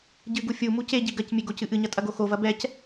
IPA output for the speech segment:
ɟ ɨ ɡ u fʲ u m u c e ɟ i ɡ ɐ c mʲ e ɡ o c ɨ ʔ ɨ ɲ ɐ tʼ ɐ ɡ o x o v ɐ b ɛ c

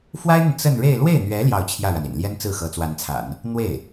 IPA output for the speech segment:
f w a˥ ɪ̯ n̪ ə˨ n t͡s ə˥˧ n ɻ e˥˧ ɪ̯ l w e˥˩ ɪ̯ n̪ ɥ ɛ˧˥ l j ɑ˥˧ ʊ̯ t͡ɕʰ j ä˥˩ ɻ a˩ n ḭ˨˩ n l j ɛ˥ n t͡s ɹ̩˥˩ x ɤ˧˥ t͡s w a˧˥ n t͡sʰ a̰˨˩˦ n | n̪ w e˥˩ ɪ̯

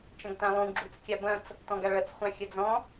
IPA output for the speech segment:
t͡ʃ ɐ̃ ɡ t ã lˠ ũ ɡ͡ǁ u t͡s kʲ a b ɐ̃ t͡s | t ɔ̃ ɡ a ɭ ɐ t͡s χʷ ã xʲ ɐ d͡z ɔ̃

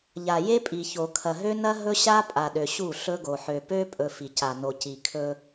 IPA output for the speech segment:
ʎ a˨ j e˦ pʼ i˨ ç o˨ kʰ ɐ˨ ɦ ø˦ n ɐ˦ ɦ ɵ˦ ɕ a˦ pʼ a˨ ɗ ø˨ ɕ u˦˨ ɬ ɵ˦ ɡ o˨ ħ ø˨ p ø˦ pʼ ɵ˨ f i˨ c a˨ n o˨ c i˨ kʰ ɵ˦

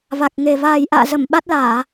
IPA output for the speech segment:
v a˨˩ k̚ ŋ e˨˩ v aː˨˩ j ʔ a̰ː˧˨ z ə˧˩ m ɓ a˦˥ t̚ l aː˧˩˨

